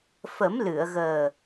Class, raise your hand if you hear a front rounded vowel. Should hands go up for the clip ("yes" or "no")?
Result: no